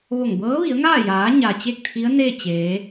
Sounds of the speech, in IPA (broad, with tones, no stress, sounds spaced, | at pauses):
ʋ o˧˩ ŋ b ɤː˧˥ ʋ i˩˧ ə̯ ŋ aː˥˨ j aː˩˧ ɲ a˩ t͡ɕ e˥˨ k̚ t̪ʰ i˧˥ ə̯ n e˥˨ t͡ɕ eː˩˧